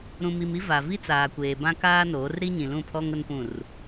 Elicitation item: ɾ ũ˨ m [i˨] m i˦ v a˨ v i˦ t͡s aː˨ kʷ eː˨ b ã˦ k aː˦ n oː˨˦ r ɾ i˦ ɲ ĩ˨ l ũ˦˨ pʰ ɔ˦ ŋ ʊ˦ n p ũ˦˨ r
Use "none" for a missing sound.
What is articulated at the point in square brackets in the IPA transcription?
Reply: i˨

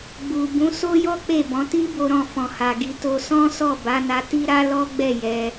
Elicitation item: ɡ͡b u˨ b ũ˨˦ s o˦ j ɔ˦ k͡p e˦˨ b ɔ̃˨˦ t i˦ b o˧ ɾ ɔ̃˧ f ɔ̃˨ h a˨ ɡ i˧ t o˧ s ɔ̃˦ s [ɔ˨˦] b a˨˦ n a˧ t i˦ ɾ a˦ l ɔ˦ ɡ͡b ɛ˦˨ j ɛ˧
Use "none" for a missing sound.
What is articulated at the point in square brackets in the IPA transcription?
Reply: ɔ˦˨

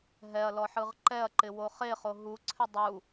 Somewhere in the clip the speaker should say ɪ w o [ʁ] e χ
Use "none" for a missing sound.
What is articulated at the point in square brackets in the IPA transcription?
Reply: χ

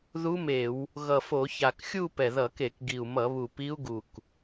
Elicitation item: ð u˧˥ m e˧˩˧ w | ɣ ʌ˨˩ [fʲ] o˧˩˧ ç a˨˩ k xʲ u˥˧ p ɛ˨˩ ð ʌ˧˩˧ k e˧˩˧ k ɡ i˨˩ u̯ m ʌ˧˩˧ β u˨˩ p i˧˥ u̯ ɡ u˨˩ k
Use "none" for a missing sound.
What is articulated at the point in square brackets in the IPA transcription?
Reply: f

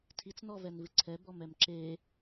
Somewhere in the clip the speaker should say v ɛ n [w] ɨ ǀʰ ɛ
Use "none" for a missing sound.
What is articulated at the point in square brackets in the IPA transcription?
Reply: v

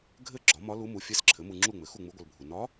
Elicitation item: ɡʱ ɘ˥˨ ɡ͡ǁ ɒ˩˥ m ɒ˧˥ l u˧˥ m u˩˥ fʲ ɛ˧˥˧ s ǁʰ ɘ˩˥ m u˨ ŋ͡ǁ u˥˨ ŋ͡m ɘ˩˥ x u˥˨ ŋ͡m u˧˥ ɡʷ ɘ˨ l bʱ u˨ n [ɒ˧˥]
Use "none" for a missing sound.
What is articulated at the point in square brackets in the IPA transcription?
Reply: ɒ˧˥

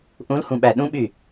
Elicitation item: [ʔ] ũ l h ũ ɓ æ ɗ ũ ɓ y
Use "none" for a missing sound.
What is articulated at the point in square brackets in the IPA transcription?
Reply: ʔ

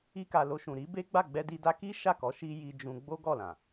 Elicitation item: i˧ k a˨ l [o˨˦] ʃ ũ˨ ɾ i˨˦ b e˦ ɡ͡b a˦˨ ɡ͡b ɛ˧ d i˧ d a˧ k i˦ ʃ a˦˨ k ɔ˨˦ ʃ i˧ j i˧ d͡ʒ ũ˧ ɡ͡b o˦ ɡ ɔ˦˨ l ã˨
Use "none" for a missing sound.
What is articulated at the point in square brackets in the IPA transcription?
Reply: o˧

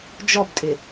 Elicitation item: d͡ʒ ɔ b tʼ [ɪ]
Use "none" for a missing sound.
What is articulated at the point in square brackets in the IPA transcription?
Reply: ɪ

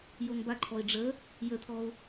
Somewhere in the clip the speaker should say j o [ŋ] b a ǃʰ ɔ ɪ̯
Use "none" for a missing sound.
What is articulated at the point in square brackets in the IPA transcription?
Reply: ŋ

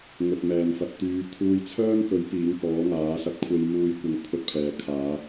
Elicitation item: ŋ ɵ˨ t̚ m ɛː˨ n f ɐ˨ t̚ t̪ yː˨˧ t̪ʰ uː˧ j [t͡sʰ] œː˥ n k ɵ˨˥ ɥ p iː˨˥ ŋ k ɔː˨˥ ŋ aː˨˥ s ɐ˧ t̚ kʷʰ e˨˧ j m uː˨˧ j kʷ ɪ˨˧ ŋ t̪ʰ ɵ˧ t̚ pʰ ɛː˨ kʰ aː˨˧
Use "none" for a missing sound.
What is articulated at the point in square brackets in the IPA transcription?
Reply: t͡sʰ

